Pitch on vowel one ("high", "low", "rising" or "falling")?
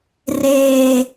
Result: high